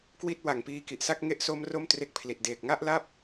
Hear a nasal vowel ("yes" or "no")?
no